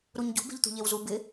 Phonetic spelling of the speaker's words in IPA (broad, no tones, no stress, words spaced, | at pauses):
ɾuɲɟṳ be̤ʎt̪ṳʎewzu bɪ